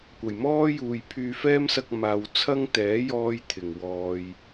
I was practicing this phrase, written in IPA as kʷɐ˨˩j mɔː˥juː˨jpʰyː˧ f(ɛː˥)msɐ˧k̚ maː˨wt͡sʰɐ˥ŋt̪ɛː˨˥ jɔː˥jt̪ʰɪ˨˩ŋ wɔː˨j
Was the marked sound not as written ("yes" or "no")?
no